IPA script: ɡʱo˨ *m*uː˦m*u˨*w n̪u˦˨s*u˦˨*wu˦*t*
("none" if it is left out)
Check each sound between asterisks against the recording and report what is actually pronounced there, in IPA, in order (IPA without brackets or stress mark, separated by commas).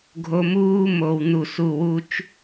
m, o˨, u˦˨, t͡ʃ